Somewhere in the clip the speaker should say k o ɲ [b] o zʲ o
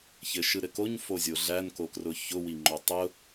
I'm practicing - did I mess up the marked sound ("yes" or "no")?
yes